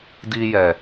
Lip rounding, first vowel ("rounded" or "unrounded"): unrounded